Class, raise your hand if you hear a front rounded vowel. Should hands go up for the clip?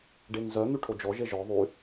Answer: yes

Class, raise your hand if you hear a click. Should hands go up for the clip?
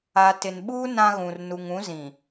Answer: no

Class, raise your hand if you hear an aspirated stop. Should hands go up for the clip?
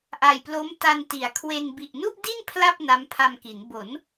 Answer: yes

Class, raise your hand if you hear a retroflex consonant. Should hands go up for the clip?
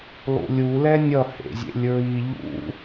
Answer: no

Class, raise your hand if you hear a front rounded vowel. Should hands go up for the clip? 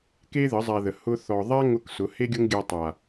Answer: no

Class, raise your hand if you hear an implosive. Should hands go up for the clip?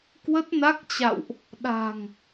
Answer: yes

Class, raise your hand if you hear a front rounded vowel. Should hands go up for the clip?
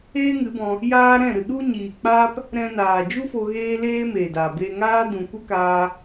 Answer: no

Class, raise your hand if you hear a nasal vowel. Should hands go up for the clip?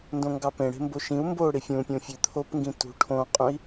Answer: yes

